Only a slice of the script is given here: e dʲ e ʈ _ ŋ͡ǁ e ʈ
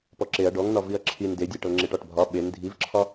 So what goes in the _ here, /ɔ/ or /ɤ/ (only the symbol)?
ɤ